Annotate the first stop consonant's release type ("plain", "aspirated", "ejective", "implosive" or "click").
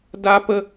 plain